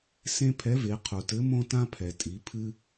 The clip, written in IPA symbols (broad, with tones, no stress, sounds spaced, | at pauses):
s ẽ˥ pʰ ɛ˧˥ v e˩˧ qʰ u˩ t ɘ˧˥ m õ˥ t ã˥ pʰ ɛ˩ tʼ i˩˧ pʰ ɨ˥